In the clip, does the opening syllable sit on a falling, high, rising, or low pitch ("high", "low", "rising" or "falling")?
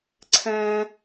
low